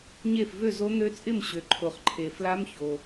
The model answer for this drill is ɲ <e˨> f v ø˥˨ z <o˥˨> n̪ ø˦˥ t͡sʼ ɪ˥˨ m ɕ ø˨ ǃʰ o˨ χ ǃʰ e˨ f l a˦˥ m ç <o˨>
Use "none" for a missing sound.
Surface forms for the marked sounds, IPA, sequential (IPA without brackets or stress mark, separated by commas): e˥˨, o˦˥, o˨